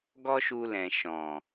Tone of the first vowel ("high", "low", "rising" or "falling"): high